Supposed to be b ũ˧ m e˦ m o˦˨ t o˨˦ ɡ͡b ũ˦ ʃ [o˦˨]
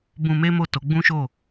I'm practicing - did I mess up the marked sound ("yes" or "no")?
no